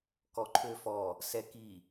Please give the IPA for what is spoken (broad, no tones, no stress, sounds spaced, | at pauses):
k ɔ ǃʰ ø f ɔ | s ɛ k i